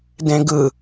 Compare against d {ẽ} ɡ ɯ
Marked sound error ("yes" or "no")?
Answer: no